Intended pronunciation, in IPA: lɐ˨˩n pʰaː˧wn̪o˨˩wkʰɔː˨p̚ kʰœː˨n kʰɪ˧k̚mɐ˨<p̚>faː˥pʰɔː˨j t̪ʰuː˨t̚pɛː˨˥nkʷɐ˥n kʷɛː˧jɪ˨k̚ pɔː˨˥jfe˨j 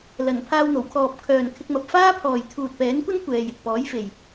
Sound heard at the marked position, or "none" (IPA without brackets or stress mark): p̚